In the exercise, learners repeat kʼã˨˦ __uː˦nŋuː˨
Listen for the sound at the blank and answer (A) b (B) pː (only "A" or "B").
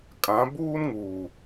A